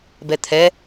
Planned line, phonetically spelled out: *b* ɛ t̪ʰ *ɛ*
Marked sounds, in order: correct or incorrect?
correct, correct

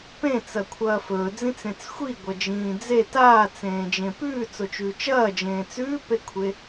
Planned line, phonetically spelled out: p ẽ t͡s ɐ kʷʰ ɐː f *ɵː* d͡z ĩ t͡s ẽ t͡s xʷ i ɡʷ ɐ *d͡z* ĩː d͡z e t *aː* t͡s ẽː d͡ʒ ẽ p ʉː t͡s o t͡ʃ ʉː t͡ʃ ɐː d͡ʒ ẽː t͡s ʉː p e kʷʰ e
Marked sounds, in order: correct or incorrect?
correct, incorrect: d͡ʒ, correct

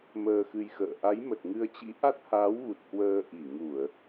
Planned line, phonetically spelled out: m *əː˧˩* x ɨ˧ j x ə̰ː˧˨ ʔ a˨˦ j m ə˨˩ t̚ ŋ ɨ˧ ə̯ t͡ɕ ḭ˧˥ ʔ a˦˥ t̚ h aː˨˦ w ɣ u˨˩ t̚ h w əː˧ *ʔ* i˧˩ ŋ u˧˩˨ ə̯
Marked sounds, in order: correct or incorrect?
incorrect: əː˧, correct

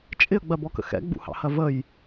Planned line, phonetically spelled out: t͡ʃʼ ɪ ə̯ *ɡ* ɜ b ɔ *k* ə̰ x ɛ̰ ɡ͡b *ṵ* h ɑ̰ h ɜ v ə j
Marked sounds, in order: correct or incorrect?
incorrect: ɡ͡b, correct, correct

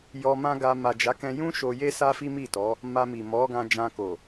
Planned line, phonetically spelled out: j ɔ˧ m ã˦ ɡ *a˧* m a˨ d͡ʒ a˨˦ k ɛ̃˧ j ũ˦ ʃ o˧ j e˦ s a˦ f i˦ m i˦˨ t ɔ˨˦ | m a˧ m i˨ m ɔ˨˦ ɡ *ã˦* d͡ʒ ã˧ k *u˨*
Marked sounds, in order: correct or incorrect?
correct, incorrect: ã˧, incorrect: o˨

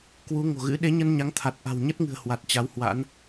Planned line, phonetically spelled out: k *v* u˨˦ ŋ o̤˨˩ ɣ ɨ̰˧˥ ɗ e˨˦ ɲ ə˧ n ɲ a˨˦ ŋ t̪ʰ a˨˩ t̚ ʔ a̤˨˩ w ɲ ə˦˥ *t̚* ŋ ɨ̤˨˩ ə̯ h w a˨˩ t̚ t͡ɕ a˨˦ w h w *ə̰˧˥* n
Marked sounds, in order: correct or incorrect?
incorrect: w, correct, incorrect: a̰˧˥

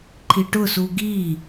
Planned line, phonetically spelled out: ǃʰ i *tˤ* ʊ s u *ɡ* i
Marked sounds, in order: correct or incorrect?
incorrect: ʈ, correct

